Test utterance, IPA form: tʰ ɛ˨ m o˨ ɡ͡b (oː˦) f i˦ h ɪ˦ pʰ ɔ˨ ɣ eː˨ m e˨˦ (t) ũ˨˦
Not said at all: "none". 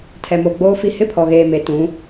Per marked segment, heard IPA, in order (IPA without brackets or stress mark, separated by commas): oː˦, t